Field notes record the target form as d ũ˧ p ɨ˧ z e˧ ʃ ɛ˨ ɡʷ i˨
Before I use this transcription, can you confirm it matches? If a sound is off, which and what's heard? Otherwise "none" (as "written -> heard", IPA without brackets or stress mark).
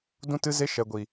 p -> t